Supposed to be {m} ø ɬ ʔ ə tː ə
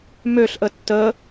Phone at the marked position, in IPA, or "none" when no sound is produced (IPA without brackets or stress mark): m